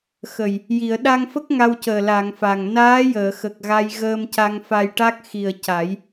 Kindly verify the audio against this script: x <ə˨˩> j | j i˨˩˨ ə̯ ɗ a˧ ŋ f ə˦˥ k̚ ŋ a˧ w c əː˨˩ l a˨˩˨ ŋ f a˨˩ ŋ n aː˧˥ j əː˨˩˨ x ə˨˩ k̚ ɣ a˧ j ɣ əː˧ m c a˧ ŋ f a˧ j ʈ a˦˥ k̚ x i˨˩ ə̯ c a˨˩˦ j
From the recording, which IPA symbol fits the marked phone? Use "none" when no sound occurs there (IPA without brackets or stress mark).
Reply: ə˨˩